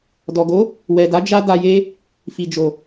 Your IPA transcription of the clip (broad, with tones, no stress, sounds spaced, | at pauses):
d ɔ˨ ɡ o˨˦ | w ɛ˨ d a˨˦ d͡ʒ a˦ d a˧ j e˦ | f i˨ d͡ʒ o˨